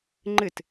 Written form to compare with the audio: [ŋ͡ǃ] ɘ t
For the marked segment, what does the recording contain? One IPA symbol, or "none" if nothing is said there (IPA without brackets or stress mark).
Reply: ŋ͡ǃ